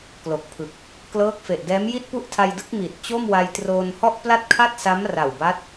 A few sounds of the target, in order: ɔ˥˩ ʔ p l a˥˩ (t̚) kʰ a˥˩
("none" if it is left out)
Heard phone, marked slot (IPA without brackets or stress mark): t̚